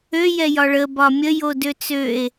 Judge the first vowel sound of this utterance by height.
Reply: mid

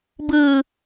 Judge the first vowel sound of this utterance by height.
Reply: high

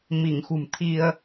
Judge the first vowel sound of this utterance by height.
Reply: high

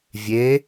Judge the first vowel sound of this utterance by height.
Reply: mid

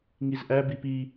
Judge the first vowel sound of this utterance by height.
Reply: high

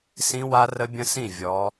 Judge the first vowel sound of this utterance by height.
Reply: high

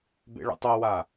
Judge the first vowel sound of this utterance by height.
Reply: mid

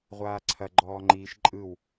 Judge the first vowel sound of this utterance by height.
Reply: low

